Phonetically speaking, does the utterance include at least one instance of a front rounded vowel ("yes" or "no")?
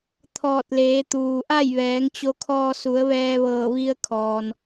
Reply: no